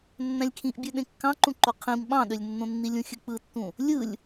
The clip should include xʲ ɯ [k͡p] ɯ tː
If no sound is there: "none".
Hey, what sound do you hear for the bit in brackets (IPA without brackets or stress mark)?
k͡p